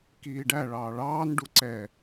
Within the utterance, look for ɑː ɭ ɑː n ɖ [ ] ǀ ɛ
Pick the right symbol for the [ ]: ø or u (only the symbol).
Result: u